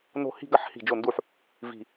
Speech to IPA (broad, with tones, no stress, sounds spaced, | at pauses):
n o̤˥˩ h i̤˥˧ ɡ ɐ˥˧ ħ h i̤˥˩ d͡ʒ o˥˩ n d u˥˩ ħ | v i̤˧˩